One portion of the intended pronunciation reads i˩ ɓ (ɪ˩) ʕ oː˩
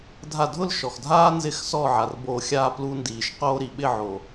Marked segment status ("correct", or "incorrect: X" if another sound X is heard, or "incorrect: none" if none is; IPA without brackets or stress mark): incorrect: ɪ˥˨